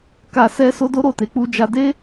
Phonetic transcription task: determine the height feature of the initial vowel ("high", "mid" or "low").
low